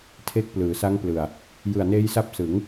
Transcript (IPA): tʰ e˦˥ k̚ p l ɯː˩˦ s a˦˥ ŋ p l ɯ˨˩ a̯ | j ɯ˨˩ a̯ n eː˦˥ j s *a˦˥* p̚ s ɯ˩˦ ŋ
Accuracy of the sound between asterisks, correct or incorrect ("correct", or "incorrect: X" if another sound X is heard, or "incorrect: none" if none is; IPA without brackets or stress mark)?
correct